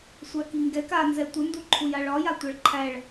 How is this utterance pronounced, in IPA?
sʷ a k i ŋ ɡ ɛ k a n z ɛ tʷ ə n d u ǃʰ u j a ɭ ɒ j a tʷ a ɭ ǃʰ æ ɭ

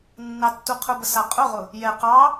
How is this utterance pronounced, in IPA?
nː ɑ tː u qʰ ʊ b ə s a qʼ ʊ ʁ ʊ | j ɛ q ɑ

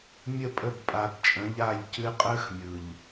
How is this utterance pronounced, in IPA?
mʲ ə˦˨ pʼ ə˦˨ b pʼ a˨ b t͡ʃʼ ə̃˨˦ ʎ a˦˨ ʎ c ɨ˦ qʼ əː˦ x mʲ ɯ˨ ʎ

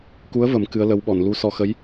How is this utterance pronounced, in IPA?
k u˧˥ ə̯ v ə˨˩˦ m k ɨ˧˥ ə̯ l ə˧˥ w ɓ ɔ˨˩˨ n l u˧˥ s ɔ˧ x ə˧˥ j

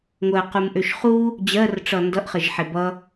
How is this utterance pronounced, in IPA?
ŋʷ ɜ q u m ʔ ø ʃ χ u | d͡ʑ ɜ r ʈ͡ʂ ʌ n d ʌ ʔ χ ə ʒ ħ e b ʌ

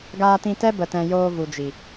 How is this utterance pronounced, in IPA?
ɡ aː˧ t ĩ˧ t ɛ˦ b ə˨ t ɛ̃˨ j oː˧ v u˨ d͡ʒ i˨

